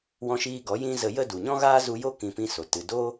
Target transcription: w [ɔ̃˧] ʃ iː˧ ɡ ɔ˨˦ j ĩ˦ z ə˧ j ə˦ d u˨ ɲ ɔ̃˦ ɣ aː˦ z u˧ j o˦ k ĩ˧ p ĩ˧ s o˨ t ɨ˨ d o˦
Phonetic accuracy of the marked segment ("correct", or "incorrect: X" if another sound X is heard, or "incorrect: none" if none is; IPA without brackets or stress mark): correct